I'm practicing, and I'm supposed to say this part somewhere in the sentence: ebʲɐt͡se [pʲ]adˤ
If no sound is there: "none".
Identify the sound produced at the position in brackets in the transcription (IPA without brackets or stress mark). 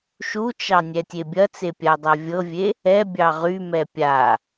pʲ